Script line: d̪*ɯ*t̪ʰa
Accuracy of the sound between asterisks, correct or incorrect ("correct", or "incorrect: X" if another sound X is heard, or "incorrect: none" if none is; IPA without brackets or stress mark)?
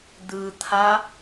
correct